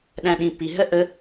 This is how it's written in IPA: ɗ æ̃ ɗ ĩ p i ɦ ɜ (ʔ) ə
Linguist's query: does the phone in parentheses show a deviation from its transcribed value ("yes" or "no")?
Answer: no